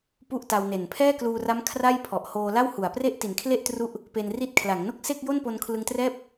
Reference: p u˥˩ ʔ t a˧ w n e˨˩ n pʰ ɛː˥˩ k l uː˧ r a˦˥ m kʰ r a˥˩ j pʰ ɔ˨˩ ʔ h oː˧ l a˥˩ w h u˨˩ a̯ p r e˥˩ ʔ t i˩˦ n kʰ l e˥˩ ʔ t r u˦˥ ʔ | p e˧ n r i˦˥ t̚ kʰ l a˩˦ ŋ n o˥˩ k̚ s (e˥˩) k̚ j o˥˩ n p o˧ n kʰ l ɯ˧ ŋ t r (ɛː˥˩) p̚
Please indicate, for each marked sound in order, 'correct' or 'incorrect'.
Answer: correct, correct

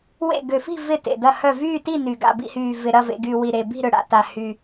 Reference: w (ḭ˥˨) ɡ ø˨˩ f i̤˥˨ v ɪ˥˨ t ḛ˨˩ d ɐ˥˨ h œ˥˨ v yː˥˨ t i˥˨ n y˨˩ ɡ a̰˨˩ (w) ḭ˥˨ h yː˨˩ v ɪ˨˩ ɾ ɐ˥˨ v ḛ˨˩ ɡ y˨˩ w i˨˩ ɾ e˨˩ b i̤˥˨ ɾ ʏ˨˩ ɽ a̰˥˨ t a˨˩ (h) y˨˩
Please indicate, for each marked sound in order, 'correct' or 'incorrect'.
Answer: incorrect, incorrect, correct

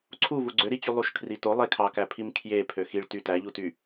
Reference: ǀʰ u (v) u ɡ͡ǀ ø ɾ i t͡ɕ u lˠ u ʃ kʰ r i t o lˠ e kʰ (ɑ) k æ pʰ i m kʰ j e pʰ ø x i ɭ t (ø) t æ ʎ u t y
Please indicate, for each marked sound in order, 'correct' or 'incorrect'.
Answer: correct, correct, incorrect

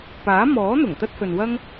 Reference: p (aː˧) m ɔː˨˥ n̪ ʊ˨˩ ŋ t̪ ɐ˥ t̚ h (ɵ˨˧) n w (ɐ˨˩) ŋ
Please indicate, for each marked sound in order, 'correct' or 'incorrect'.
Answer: incorrect, incorrect, incorrect

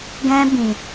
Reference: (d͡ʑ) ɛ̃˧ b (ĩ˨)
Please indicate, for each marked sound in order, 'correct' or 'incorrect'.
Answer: incorrect, correct

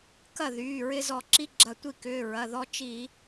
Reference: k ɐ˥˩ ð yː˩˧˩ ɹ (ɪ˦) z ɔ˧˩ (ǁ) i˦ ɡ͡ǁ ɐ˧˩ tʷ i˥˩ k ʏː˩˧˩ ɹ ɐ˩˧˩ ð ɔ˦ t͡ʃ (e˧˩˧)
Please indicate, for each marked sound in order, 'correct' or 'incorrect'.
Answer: correct, correct, incorrect

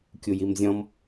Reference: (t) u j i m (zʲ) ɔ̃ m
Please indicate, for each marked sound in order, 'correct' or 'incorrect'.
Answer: incorrect, correct

